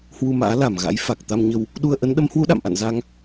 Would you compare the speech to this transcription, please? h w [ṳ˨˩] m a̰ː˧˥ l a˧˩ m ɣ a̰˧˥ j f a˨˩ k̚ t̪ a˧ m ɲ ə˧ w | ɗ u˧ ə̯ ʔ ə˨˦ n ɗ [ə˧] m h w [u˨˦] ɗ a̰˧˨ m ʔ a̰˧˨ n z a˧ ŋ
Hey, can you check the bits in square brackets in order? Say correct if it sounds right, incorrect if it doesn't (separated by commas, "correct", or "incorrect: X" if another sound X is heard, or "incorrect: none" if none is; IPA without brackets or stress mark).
incorrect: u˧, incorrect: ə˨˦, correct